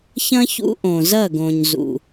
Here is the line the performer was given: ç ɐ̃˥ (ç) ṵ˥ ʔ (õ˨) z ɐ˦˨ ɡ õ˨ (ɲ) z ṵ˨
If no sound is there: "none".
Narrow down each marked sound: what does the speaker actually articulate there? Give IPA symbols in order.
ç, õ˨, ɲ

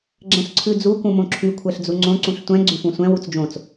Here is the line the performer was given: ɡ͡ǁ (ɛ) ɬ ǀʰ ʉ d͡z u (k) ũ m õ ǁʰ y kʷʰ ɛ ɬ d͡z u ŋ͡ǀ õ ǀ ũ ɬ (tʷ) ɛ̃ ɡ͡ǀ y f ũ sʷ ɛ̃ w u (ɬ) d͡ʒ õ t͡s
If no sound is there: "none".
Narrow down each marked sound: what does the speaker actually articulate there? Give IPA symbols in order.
ɛ̃, k, tʷ, t͡s

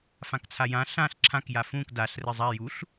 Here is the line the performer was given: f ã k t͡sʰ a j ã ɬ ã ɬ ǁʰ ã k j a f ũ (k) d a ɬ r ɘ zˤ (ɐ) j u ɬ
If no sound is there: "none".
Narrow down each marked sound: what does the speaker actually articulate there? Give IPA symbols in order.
k, a

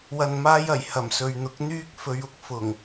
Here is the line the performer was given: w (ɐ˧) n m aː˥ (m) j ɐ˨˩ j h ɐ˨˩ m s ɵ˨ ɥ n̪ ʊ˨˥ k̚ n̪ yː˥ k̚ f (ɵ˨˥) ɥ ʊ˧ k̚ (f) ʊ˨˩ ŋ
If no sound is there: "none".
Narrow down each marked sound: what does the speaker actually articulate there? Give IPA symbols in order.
ɐ˧, none, ɵ˨˧, f

